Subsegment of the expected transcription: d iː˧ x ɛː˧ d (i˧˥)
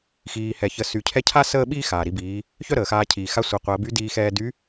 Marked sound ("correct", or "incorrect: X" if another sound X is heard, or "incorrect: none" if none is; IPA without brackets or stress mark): incorrect: y˧˥